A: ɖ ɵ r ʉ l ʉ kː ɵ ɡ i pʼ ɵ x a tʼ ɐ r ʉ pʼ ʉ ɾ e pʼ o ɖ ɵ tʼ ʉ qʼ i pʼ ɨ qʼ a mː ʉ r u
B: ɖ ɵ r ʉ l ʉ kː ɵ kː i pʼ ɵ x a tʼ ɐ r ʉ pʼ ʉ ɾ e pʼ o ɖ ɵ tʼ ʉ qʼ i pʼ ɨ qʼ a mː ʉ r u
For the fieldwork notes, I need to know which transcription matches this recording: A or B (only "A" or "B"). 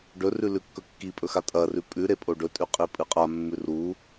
B